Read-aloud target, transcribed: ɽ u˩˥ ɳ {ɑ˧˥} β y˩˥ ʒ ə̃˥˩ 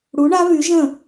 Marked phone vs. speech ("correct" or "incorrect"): incorrect